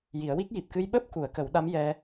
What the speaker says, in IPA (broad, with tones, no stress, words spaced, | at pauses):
ji˨˩˦ə̯wi˦˥k̚ ji˨˩p̚kɨ˧jɓəː˦˥p̚ ku˨˩˨ə̯ kə˨˩˦wɗa˧˥m jɛ˧